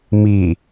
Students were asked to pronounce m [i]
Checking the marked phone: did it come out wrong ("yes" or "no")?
no